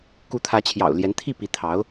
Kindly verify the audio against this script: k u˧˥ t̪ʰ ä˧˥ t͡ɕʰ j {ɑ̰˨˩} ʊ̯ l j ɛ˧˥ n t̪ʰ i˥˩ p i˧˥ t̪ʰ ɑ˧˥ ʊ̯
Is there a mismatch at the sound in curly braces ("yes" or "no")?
no